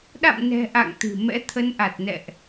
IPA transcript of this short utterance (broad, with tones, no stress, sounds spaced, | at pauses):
ɗ a̰˧˨ m n ɛ̤˨˩ ʔ a̰˧˨ ŋ t̪ ɨ̤˨˩ m ɛ̰˧˥ t̪ʰ ə˨˦ n ʔ a˨˩ t̚ n ɛ̰˧˨ ʔ